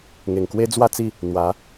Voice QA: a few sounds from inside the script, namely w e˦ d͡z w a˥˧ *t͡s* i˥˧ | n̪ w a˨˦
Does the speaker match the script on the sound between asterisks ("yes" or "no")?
yes